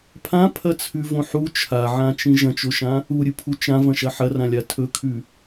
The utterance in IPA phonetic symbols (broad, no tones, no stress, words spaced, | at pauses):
pʰãpʰɐt͡sʰʉvõ ħu t͡ʃʰaʕãt͡ʃĩ ʒɐ̃t͡ʃoʃã | uɾʲɨpʰu t͡ʃãvɐ̃ʃɐ ħɐrãlʲa tʰɵkʰʉ